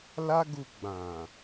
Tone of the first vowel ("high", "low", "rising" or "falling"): high